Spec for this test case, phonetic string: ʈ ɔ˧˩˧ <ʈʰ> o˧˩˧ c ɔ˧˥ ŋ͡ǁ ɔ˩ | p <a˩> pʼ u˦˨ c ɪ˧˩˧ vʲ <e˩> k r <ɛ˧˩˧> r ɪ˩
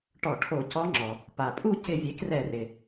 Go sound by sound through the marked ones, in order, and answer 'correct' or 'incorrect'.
correct, correct, incorrect: e˩˥, correct

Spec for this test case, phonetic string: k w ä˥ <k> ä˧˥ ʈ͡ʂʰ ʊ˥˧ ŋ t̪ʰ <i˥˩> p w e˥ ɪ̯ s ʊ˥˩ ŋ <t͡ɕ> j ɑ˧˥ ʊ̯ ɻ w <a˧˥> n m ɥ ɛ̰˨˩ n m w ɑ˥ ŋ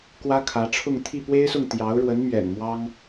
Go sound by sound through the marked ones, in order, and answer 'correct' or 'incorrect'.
incorrect: kʰ, correct, incorrect: t̪, incorrect: ə˧˥

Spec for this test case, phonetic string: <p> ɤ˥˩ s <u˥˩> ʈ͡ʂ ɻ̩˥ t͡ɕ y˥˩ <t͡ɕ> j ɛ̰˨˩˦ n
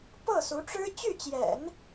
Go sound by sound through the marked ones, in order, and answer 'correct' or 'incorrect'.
correct, incorrect: u˧˥, correct

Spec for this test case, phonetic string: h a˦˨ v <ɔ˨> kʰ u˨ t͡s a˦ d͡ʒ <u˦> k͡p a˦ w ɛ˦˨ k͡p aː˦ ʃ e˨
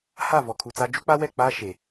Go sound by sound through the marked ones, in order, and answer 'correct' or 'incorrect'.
correct, correct

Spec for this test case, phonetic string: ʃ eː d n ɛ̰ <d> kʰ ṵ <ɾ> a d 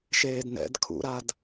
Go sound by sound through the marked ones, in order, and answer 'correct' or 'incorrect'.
correct, correct

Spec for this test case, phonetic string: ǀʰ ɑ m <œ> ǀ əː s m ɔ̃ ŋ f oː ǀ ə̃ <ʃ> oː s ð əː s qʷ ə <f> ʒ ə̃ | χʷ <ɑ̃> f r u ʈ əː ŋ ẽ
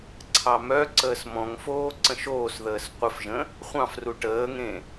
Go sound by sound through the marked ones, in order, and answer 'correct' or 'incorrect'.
correct, correct, correct, correct

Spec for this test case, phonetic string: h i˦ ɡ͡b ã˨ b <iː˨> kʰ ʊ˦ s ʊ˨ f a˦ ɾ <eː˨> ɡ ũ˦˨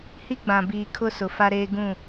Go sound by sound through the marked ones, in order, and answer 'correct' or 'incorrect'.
correct, incorrect: eː˦

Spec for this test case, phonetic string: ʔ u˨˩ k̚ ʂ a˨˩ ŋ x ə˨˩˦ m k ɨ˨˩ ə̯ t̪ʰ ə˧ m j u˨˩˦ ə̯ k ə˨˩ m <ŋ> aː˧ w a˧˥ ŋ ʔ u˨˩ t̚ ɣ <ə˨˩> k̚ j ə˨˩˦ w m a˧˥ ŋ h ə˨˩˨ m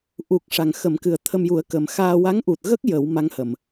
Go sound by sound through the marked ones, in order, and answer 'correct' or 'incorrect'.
incorrect: x, incorrect: ə˦˥

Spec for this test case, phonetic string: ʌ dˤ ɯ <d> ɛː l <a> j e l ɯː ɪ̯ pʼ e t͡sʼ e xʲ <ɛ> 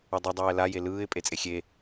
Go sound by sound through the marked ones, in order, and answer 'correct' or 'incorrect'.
incorrect: dˤ, correct, incorrect: e

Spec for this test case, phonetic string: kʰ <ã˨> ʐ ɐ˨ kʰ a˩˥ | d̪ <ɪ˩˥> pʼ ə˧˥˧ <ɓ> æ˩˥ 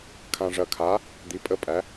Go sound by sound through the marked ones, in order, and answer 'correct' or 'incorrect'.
correct, incorrect: i˩˥, incorrect: pʼ

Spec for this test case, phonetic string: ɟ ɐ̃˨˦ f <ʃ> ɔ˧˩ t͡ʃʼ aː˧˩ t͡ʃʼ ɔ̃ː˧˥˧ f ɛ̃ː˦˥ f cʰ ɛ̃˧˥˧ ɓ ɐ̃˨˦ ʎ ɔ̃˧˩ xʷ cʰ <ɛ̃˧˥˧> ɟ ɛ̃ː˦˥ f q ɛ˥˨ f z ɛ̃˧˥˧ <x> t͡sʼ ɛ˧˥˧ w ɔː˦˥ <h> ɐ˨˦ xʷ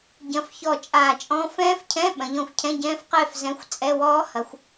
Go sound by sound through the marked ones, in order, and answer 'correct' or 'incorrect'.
incorrect: ç, correct, incorrect: xʷ, correct

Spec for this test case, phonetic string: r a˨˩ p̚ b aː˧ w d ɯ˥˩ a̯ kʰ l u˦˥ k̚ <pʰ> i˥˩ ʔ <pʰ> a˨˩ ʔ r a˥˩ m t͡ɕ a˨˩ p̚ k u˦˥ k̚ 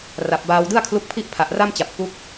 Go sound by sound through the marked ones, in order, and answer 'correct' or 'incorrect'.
correct, correct

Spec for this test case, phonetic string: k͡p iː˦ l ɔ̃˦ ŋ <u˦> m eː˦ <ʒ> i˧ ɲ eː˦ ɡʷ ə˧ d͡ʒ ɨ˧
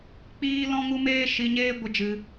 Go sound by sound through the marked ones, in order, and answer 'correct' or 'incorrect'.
correct, incorrect: ʃ

